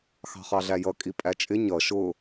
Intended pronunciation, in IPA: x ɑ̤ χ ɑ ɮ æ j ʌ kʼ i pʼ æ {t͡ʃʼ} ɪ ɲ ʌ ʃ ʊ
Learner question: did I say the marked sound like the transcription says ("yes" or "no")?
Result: yes